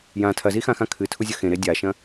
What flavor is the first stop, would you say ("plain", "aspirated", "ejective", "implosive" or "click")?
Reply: aspirated